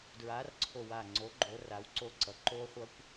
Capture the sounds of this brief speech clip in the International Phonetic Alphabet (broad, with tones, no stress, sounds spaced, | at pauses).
d ɹ a˨˥ r ǀʰ o˧˩ w a˧˩ ŋ͡ǀ o˨˥ ɡ͡ǃ o˩˧ r a˩˧ w ǀ o˧˩ ǀ ʌ˩˧ ǃ o˦˥ χʷ ʌ˦˥ kʷ